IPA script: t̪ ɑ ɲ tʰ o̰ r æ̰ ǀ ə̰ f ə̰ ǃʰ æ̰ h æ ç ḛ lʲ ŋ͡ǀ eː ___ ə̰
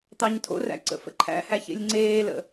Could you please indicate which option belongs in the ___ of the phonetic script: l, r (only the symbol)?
l